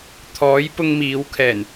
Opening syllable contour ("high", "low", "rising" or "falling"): rising